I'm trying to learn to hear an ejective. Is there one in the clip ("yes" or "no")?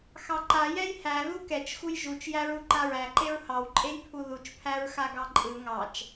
yes